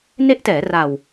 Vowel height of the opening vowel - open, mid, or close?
mid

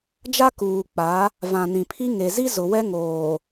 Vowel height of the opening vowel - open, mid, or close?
open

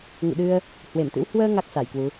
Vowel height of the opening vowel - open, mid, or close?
close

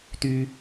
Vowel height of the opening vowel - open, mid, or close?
close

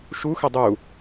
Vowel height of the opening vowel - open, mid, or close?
close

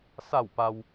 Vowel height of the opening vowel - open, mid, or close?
open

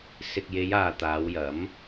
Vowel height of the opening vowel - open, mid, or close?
close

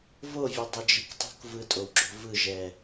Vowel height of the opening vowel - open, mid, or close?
mid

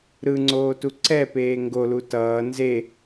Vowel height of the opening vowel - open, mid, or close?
close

